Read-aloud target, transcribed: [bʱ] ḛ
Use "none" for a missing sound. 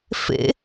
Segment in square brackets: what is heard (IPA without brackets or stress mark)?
f